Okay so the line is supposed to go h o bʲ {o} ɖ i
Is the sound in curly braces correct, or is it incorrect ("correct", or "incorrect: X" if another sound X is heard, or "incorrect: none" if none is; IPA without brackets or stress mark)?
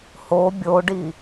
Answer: correct